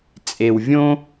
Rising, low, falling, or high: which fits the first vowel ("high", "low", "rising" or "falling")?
low